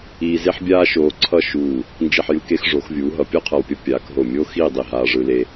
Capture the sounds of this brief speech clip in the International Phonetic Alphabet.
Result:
iː˧ze˥ħbʲaː˥ʃoː˧ ǀʰʌ˥˧ʃuː˧˩ | nd͡ʒi˧˩ħjɯ˧ ke˧xʐo˩˧xvʲuː˩˧ ɦʌ˩˧pʲo˥qʰʌ˧˩wpʲʌ˥ pʲaː˩˧k ɦo˧˩mʲoː˥xiː˥˧dˤi˧˩ ɦaː˧ʐɯ˧le˧

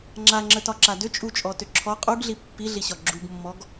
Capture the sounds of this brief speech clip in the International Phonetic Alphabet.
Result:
ŋ͡ǁaŋ͡ǁətɒǁa dʏt͡ʃʼut͡ʃʼɔtʏ ǁʰɔ qʼuɡɮi pːiɮiɕɒ ɡ͡ǁuɡmːɔɡ

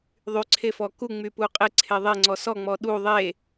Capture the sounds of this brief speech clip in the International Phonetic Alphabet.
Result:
ðˤyǀʰefɔ kuŋ͡mypu qʼeǀʰe ðˤeŋ͡ǀɔ sɔŋ͡mɔ ɗu ðˤe

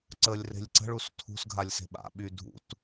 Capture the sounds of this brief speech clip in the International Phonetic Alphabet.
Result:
ǀəlʲre̤lʲ ǀə̤ɭ ustʰṳsɡʱalʲ se̤ɓa̰ɓy dʱṵt

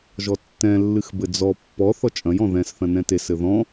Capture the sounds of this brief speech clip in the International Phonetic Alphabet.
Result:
ʒɔtːɛ̃lːɨx bɘd͡zɔ pːɔ θɔt͡ʃʼɐ̃jɔ̃ ðɛ̃sθɐ̃ nɛ̃tesɘ ðɔ̃

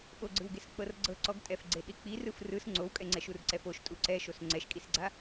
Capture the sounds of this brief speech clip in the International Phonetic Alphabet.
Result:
ɓoɡ͡ǀɯwɡes k͡pɤrɡ͡ǀɤǀɔɡ tʼɛfɡ͡ǀeɗik͡pi rɯfrɯs ŋ͡ǀowkʼɛŋ͡ǀɛʃ urǀɛfoʃ tʼuǀɛʃos ŋ͡ǀɛʃkʼisɡ͡ǀa

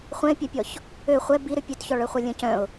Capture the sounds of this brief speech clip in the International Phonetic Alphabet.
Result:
χʷɛ̃ɪ̯pʲɛpʲɔç | ø χʷɛ biɾʏ pʲøtçɔɭœχʷɐ lʲœ̃cœ̃ʊ̯

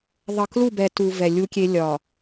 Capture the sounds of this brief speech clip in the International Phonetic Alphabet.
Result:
ðˤʌ˨klu˦˨bɛ˨ tu˨ vɛ˨lʲu˦kʲe˦ lʲɒ˨

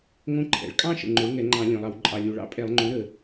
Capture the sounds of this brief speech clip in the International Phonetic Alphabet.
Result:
ŋõ˥˧ǃʰɛ̰˨˩ɭ kʼɑ̃˥˧ʃə̰˨˩ ŋ͡ǃo˩˥ɭŋɛ˧˩˧ŋ͡ǃɑ̃˧˩˧ lʲõ˨˩lˠɑ˧˩˧w ǃʼɑ˨˩lʲu˨˩ɭɑ̰˥˧ pʼɛ˧˩˧lˠŋ͡ǃõ˩˥ ɾə˨˩

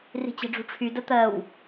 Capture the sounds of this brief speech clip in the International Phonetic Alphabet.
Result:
ri̤t͡ɕe̤ɖ͡ʐṳʈ͡ʂʰy dət̪ɜw

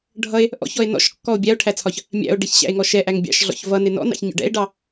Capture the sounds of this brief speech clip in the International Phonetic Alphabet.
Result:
ɖʱʌe̯ | ʔɔ̰çɔe̯ nɔ̰ʃkːɔo̯ bʲæo̯ʈʰæt͡sʰɒç | mʲæ̰o̯ ɖɪçɕæ̰e̯ŋɔ ʃɛʔæŋ bʲɑ̰ʃɮɔ̰ç vʌnɪ nɔ̰nɑ̰çɲɔ̰ ɖɛ̰e̯ɖɑ

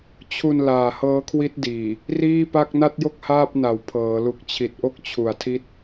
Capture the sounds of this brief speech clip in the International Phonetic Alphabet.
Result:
t͡ɕʰu˧n laː˨˩hɤː˦˥kʰwi˦˥t̚ diː˨˩ | riː˥˩pa˥˩k̚ na˥˩t̚jo˥˩k̚ haː˥˩p̚na˩˦w pʰɤː˩˦ lu˨˩k̚t͡ɕʰi˨˩t̚ʔo˥˩k̚t͡ɕʰu˨˩a̯ tʰi˦˥t̚

